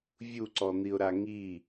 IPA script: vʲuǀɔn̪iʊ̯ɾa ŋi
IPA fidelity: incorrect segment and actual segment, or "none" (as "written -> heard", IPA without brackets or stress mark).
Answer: none